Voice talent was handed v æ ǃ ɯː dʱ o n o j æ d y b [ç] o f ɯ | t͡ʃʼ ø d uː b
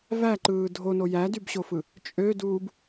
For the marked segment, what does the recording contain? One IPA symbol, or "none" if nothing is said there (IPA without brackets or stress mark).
ɕ